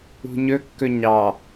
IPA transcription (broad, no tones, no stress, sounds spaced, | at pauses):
ṳ ɲ ɵ kː ɵ ɲ ɑ